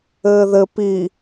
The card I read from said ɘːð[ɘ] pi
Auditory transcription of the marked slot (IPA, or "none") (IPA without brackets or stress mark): ɘ